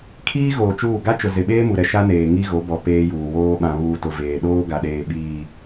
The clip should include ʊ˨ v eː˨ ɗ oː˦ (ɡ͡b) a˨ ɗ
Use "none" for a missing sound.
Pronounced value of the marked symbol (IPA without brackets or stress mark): ɡ